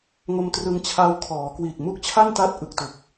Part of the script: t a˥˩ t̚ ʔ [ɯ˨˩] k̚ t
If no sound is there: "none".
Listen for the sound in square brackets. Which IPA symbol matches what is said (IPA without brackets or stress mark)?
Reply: ɯ˨˩